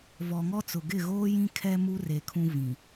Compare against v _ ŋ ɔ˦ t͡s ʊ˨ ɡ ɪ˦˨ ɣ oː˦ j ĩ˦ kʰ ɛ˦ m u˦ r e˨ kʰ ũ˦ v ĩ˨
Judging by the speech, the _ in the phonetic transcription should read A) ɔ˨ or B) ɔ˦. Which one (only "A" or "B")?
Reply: A